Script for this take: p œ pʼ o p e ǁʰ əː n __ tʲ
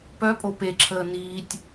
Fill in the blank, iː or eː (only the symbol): iː